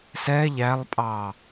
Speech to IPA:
sɛ ʎælˠpʼɑ

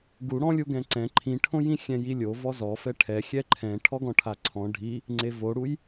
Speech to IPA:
ɡuɽɔ̃lʲu ɡɛ̃ǀɛ̃ ǃʰĩʈʰõjĩ xʲɛ̃jilʲo vɔzɔfɛ ʈʰɛxʲɛ ǃʰɛ̃ ʈʰɔɡɔ̃ʈʰaǀʰɔ̃ ɖʱi | ŋ͡ǀevoɽuj

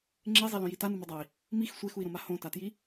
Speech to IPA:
ŋ͡ǁezˤelõji tanumudˤai̯ | mix sʷexui̯ɾõma hõtatji

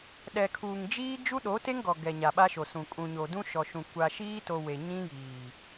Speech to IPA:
ɗɛ˨kʰuː˨ŋd͡ʒiː˦ d͡ʒu˦ɗo˨˦te˦ŋɡɔ˨ ɡɛ˨ɲa˨ ɓa˦ʃo˨sũ˨ kʼũ˨ɲo˨ dũ˦ʃɔ˨ʃũ˨ kʷa˨ʃiː˦to˨ we˨ ɲĩ˦jiː˨

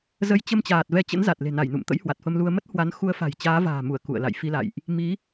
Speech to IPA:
zə˨˦jt͡ɕə˧mt͡ɕaː˨˩t̚ vɛ˨˦t͡ɕə̰˧˥nza˨˩t̚ le̤˨˩na˧˩jnṵ˧˨mt̪ə̰˧˥j hwa˨˩t̚fə˧mlu˧ə̯ mə˦˥t̚hwa˨˦n xu˨˦ə̯fa̤˨˩j t͡ɕaː˨˦va̤ː˨˩mu˧˩ə̯ kṵ˧˨ə̯la̰˧˨jfi˧ la̰˧˨jʔ | mi˨˦

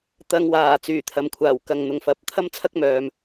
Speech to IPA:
t̪ɐ˧ŋwaː˨˩ t͡syː˨˩t̪ʰɐ˨˧mkʷʰaː˨˩wkɐ˨ŋ n̪ʊ˨ŋfɐ˨˥p̚ t̪ʰɐ˥mt͡sʰɐ˥k̚mœː˨m

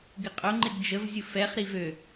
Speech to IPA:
ɡɪqʼʊŋ͡ǃɪɡ d͡ʒəvzʲʊ fɛχɾi vø

